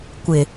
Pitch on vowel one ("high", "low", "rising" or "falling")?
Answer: low